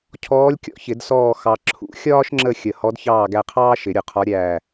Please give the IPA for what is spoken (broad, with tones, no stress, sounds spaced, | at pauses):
cʰ ɔː˧˥ lʲ kʲ ɔ̰˨˩˦ ç ɪ˨˩˦ d s ɔː˦˨ x ɑ˨ ǁʰ ṵ˨˩˦ xʲ ɒː˥ ʃ ŋ͡ǁ ə˦˨ xʲ ə˨ h ɔ˧˥ d ç ɑː˦˨ ɡ æ˦˨ qʰ ɑː˥ ʃ ɪ˨˩˦ ɾʲ ʊ˨˩˦ qʰ ɒ˧˥ ɾʲ æː˦˨